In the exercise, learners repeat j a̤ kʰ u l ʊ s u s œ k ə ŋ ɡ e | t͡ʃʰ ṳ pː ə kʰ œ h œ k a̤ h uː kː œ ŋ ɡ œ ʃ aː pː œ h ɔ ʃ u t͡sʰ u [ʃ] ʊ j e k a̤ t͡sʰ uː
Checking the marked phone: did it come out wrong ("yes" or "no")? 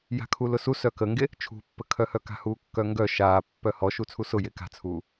yes